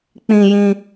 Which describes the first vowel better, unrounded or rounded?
unrounded